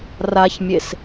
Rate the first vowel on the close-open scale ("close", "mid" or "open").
open